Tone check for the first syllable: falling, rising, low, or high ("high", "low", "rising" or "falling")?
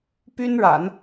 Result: high